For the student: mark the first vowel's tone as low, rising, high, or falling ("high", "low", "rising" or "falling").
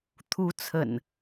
rising